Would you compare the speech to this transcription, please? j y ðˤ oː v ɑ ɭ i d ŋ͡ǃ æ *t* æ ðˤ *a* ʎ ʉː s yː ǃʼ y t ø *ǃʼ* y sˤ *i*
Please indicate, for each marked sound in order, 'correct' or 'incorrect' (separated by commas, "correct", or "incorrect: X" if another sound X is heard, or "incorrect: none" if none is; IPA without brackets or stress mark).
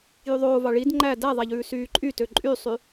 incorrect: d, incorrect: æ, correct, incorrect: y